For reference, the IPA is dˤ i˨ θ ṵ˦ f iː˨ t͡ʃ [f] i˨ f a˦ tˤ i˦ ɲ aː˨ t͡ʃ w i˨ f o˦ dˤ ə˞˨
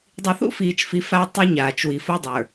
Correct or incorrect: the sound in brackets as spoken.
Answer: correct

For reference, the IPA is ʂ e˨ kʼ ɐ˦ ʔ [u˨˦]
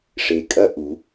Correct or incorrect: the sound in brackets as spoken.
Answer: correct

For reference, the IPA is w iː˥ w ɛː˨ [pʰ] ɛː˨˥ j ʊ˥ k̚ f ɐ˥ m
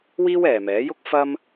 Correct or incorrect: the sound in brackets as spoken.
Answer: incorrect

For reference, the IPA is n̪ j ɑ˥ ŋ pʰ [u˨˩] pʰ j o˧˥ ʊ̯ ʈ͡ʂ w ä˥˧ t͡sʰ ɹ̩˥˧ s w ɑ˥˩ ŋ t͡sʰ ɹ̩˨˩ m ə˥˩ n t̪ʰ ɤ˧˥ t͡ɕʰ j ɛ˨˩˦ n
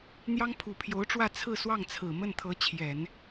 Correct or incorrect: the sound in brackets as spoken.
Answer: correct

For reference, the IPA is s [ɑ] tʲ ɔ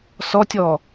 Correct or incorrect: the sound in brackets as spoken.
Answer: incorrect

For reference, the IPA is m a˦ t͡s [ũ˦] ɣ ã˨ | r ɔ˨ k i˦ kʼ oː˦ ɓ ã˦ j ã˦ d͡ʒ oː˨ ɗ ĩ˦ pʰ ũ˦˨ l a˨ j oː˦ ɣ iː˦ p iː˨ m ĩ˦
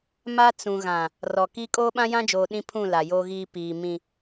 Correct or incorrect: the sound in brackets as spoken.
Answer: incorrect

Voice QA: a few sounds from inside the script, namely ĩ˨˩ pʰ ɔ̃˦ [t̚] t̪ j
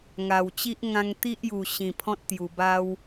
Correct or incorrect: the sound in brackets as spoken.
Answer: correct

